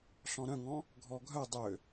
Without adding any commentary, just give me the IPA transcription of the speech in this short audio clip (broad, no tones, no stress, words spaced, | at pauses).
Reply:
ɬɔ̃ɾœ̃ŋɔ̃ | ɡʱɔɡʱœ dˤø